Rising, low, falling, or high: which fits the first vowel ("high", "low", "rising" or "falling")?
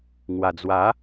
low